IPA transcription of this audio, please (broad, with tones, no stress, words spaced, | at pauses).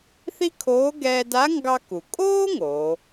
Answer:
θi˥kʰoː˧˥ ɡɛː˧da˧˥ ŋɡɑ˥ku˩ kʼoː˥ ŋo˩˧